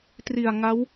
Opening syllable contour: low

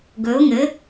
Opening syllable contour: rising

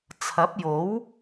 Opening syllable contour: rising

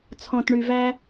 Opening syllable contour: low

